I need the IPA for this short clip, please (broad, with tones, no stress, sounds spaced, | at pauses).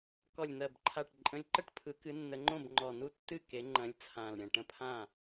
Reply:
k ɔ˨˩ lʲ n̪ ɜ˨˩ b ǃʰ a˨˩ ʈ ǃʼ ə̃˨˦ lʲ ǃ ə˥˩ ʈ pʰ ɯ˨˦ k ɨ˨˦ nː ə˨˦ ŋ͡ǃ õ˥˩ b ŋ͡ǃ ɔ˨˩ n u˥˩ tː ɨ˥˩ k e˨˦ ŋ͡ǃ ɐ̃˨˦ lʲ t͡sʰ ã˨˩ l ɾʲ ɐ̃˨˩ ʈ ə̃˥˩ pʰ ã˥˩